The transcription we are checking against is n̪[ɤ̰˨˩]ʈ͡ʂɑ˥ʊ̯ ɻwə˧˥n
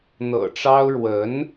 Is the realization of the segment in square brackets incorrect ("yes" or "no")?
no